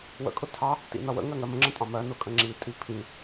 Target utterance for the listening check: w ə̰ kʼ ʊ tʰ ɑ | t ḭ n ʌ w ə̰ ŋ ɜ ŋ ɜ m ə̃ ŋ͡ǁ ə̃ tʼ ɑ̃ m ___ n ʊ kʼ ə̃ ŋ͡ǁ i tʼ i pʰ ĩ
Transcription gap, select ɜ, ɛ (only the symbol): ɜ